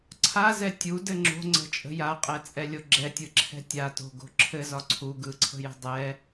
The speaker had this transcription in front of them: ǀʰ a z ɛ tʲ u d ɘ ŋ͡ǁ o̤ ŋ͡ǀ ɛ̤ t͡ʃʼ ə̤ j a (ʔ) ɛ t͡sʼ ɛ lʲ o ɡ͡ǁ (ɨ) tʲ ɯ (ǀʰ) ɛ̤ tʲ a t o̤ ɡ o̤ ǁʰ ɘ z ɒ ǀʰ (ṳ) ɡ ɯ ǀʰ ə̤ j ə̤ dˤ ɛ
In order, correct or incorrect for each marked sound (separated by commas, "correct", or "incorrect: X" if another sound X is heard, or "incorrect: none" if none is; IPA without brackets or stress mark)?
incorrect: qʼ, incorrect: ɛ, incorrect: ǁʰ, incorrect: u